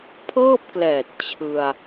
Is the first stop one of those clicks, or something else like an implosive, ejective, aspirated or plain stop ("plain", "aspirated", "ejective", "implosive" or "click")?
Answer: aspirated